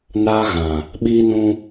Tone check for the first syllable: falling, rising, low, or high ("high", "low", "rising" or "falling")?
high